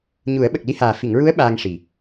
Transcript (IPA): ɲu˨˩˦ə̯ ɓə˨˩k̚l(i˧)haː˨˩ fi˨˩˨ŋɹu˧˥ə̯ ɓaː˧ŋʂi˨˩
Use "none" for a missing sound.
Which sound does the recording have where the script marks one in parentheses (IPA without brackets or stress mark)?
i˧